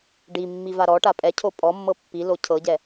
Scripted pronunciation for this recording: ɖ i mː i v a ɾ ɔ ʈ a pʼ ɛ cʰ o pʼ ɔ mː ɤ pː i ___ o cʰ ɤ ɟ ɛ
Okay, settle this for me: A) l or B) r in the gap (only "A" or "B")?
A